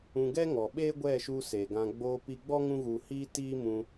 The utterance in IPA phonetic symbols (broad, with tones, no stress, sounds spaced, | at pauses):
ũ˧ ɡ ɛ˦ ŋ ɔ˨ ɓ eː˦ ɡʷ ɛ˦˨ ʃ u˧ s e˨ ɡ ã˧ ɡ͡b oː˧ p i˧ ɡ͡b ɔ˦ ŋ ũ˦ ɣ u˧ h iː˦ t iː˦ m ũ˧